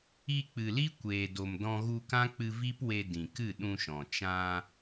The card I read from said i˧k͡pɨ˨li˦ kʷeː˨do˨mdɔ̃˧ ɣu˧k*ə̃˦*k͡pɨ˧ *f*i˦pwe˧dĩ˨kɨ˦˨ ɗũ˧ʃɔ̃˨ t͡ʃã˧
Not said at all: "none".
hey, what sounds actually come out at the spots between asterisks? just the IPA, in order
ã˦, v

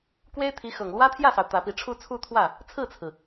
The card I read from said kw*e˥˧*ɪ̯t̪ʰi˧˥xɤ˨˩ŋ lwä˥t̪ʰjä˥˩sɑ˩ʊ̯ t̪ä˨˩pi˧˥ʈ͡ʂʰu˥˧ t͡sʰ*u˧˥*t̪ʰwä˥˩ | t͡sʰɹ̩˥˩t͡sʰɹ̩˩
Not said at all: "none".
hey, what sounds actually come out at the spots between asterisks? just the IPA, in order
e˥, u˥˧

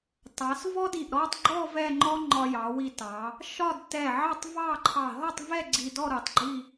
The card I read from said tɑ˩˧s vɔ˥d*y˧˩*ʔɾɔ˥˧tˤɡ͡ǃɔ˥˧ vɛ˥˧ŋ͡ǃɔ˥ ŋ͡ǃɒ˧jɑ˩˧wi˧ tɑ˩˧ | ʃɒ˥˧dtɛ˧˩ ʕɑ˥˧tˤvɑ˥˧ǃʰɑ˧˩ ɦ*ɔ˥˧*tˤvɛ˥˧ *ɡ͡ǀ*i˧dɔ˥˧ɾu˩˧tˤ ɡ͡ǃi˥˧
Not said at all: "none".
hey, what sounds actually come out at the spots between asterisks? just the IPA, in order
i˧˩, ɔ˥˧, ɡ͡ǀ

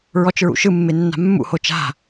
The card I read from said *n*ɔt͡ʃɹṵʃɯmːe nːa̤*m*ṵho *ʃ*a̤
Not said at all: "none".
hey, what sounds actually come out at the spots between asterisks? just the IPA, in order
ɹ, mː, t͡ʃ

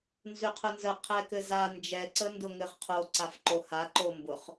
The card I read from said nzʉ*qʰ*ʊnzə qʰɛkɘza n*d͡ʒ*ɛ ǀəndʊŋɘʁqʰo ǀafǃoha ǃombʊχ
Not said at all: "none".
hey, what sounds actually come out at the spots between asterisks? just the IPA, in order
qʰ, d͡ʒ

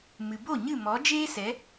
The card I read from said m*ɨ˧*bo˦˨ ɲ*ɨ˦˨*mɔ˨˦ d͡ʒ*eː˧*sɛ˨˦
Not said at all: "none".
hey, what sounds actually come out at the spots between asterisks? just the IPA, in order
ɨ˨, ɨ˦˨, eː˦

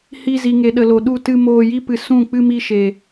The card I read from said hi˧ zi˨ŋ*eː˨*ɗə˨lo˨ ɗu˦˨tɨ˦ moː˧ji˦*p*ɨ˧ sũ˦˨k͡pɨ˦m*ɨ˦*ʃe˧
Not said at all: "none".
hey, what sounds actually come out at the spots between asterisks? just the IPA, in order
e˨, p, i˦

